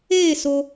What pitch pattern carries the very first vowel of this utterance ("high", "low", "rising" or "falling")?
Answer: falling